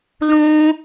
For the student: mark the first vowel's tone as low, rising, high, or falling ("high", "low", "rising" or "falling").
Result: high